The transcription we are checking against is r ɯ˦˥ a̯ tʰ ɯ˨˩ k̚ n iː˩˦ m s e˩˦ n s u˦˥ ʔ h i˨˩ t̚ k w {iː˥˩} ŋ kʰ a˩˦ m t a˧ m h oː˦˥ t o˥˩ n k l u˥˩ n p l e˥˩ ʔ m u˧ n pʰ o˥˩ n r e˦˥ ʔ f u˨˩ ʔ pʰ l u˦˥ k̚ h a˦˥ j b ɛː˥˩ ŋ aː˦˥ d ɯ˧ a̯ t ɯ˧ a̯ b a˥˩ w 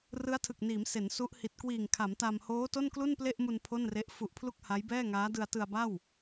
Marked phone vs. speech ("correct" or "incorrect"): incorrect